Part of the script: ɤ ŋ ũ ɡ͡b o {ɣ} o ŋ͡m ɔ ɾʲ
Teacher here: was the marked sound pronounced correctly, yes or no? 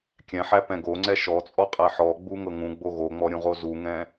yes